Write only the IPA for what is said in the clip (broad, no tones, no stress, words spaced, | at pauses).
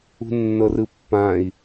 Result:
ṳnːɤrɯpːãi̯